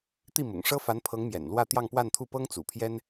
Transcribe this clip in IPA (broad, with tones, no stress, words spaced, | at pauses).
t̪i˥˩mʊ̰˨˩ŋ ʂɤ˥fa˧˥npʰɤ˧˥ŋ mjɛ̰˨˩nlwä˥˧ t̪jɑ˥˧ŋpwa˥˧nt̪ʰu˥˩ pɤ˥ŋt͡sṵ˨˩pʰjɛ˥n